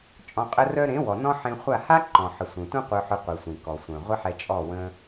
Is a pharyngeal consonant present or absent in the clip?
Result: present